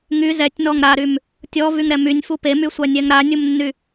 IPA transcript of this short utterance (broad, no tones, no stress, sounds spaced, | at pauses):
ŋ y z ɛ tʲ n ɔ ŋ ɾ a ɾ y m | tʲ ɔ v y ŋ ɾ ɛ m y nʲ f u p e m y sʷ a nʲ ɛ ŋ ɾ a nʲ u m nː y